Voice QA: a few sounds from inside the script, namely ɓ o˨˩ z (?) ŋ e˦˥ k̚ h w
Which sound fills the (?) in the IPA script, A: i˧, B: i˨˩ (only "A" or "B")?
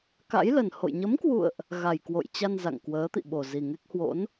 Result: B